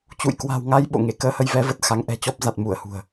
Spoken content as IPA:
t͡ɕṵ˧˨jkwa̤˨˩wŋa˧j ɓo̰˧˨ŋe˧˩ kəː˧hə˧jvɛ˨˦və˨˩t̚ xa˨˦ŋ ʔɛ̤˨˩t͡ɕɔ˦˥p̚ za˨˩t̚mu˧˩ə̯hṳ˨˩ə̯

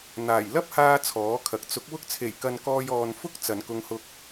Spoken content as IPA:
n̪aː˨˩j lɐ˥p̚haː˧ t͡sʰɔː˨˥kʰɐ˨k̚ t͡sʊ˨˥k̚ wʊ˧k̚t͡sʰe˨˩jkɐ˨n kɔː˧jɔː˨n fʊ˥k̚ t͡sɐ˨˩nkʊ˧ŋhʊ˧k̚

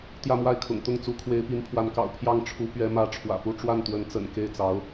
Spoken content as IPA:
t̪jä˥˧mwa˥˩ɪ̯kʰʊ̰˨˩ŋ t̪ʊ˥˩ŋt͡su˧˥ kʰwe˧˥ɪ̯pi˧˥npʰwa˧˥nkɑ̰˨˩ʊ̯ pʰjɑ˥˩ŋʈ͡ʂʰu˧˥ pɥɛ˧˥mä˧˥ ʈ͡ʂʰwä̰˨˩pu˥˧ ʈ͡ʂwa˥˩nt̪wə˧˥nt͡sə̰˨˩n ke˥˩ɪ̯t͡sɑ˧˥ʊ̯

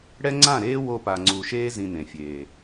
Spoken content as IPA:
ɽɛ˦ŋ͡ǀã˦˨ɾeː˦ wo˧pa˨ŋ͡ǀu˨ʃeː˦ zĩ˧nẽ˨fʲeː˨

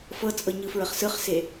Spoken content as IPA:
fɤt͡sʼɤ ɲɯfɹəχsɯχse

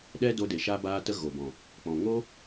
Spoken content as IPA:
ɗɛ˦do˧de˨ ʃa˦baː˦tə˦ ɣo˨bɔ̃˨ | k͡pɔ̃˨ŋo˦

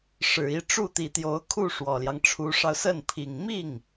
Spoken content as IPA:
ʂɻ̩˨˩i˥˧ʈ͡ʂu˥˩ t̪i˨˩t̪jo˧˥ʊ̯ kʰu˥˩ ʂwɔ˨˩ljɑ˦ŋʈ͡ʂʰu˧˥ʂɑ˧ʊ̯ sə˥˩npʰi˨˩ŋ mi˥˩ŋ

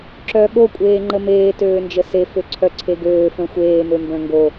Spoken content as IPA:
ǁœ ɠo kʷʼeːŋ͡ǃəmeː tøːnd͡ʒəse føǀʰœǀʰeɡøː fœ̃xʷeː mømbœ̃ŋɡo

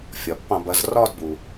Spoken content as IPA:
fʲɒ˩ pːɑ̃˧˩bɐ˩˧z rɒ˥˧dbu˩

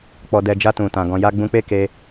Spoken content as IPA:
k͡pɔ˨dɛ˨d͡ʒa˧ tũ˨tã˨ ɡɔ̃˨ja˧ɡ͡bũ˧k͡pe˦ ke˧

